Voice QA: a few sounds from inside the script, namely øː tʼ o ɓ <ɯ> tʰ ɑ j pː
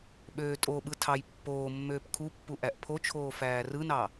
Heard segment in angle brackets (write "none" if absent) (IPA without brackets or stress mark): ɯ